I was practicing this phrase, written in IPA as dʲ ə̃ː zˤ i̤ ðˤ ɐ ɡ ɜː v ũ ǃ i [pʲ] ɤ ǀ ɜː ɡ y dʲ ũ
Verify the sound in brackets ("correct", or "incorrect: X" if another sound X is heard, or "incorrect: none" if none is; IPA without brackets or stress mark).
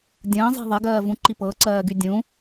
incorrect: p